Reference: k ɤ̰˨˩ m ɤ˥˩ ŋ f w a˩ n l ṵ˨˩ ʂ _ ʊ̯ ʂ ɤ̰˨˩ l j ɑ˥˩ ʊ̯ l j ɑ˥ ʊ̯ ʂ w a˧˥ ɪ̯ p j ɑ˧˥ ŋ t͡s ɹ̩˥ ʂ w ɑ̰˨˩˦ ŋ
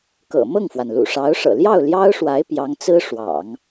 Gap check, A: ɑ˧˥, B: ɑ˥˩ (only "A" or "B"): A